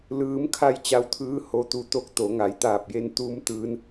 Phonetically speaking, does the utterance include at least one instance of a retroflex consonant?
no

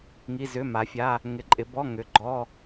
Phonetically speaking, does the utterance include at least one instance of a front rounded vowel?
yes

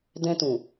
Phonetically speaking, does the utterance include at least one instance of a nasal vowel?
yes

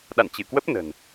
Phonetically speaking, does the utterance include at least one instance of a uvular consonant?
no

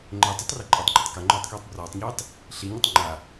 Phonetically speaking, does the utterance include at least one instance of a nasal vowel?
no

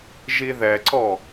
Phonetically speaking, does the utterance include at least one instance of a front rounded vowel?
no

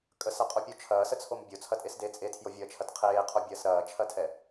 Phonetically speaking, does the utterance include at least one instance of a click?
no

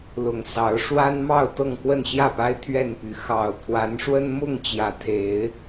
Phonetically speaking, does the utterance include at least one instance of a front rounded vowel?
yes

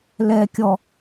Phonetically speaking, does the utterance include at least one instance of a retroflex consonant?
no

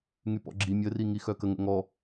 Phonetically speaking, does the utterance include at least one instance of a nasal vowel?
no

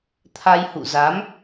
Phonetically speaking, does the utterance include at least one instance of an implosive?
no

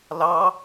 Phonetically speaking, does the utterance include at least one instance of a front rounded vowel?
no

